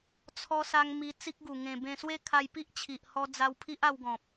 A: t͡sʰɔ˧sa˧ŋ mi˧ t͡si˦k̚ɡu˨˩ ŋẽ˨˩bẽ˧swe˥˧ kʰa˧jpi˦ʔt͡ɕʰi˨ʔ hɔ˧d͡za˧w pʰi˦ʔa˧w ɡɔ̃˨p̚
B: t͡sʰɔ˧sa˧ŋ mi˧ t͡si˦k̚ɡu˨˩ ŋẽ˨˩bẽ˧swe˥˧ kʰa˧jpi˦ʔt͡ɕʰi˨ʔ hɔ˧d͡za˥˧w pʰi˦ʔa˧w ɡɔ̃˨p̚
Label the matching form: A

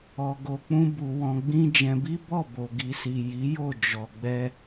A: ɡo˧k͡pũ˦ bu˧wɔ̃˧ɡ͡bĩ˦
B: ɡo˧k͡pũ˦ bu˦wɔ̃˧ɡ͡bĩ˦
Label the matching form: A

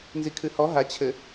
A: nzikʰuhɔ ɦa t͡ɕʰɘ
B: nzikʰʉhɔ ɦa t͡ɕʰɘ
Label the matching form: B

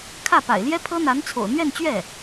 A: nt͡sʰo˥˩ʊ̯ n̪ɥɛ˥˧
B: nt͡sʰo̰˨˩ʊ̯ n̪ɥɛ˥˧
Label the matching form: B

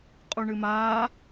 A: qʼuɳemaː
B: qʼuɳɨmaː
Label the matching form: B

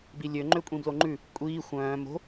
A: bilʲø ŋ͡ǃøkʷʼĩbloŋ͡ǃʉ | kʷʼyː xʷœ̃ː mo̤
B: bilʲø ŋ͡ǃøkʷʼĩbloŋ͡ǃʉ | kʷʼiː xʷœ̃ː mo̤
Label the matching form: B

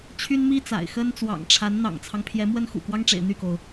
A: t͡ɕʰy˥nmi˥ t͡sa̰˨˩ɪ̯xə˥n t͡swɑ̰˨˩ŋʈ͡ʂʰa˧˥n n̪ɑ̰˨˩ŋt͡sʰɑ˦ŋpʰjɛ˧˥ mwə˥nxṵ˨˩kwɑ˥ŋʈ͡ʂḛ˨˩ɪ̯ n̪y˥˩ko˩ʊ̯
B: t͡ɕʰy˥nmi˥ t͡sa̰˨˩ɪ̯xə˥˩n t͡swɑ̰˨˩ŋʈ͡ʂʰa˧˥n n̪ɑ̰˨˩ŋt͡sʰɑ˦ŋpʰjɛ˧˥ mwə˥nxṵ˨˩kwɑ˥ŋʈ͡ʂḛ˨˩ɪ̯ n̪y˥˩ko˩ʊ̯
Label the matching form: A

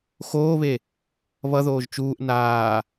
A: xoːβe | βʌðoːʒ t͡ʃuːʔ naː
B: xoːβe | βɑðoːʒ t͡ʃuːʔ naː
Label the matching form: A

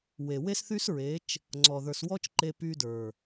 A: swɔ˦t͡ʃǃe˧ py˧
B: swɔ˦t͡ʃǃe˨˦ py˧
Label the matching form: A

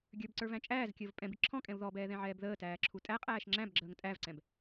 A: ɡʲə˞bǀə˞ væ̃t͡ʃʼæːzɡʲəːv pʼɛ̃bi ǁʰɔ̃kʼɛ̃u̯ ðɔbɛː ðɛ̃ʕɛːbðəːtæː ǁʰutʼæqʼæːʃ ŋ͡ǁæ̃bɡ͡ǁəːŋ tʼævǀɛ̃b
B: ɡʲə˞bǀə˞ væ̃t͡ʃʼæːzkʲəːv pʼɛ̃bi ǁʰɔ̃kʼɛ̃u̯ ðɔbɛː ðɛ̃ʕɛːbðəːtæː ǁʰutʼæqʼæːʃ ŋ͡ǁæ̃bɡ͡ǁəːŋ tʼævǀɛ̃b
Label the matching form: B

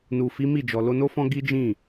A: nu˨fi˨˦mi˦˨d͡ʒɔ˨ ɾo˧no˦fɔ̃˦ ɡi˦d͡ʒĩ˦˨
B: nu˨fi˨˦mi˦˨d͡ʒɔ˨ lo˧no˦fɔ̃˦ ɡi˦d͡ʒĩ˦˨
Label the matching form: B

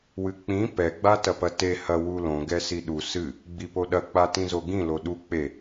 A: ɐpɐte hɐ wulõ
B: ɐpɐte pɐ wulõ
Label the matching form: A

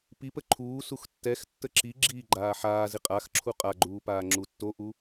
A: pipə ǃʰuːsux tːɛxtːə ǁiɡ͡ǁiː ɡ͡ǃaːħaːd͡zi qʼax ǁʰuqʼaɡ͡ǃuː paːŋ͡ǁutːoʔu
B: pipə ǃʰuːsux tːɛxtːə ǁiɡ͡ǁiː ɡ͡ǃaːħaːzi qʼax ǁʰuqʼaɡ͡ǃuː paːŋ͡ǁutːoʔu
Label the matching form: B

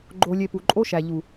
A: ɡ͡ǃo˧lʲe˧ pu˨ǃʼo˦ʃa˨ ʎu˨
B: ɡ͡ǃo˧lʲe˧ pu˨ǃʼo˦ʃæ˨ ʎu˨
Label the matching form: B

